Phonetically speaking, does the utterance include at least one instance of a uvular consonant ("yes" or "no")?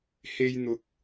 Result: no